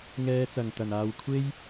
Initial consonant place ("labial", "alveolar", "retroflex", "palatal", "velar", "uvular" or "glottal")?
velar